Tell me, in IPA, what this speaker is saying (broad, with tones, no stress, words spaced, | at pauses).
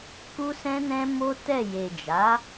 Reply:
ku˦sɛ̃˦nɛ̃˦ mo˦tɛ˦˨ je˨d͡ʒa˨˦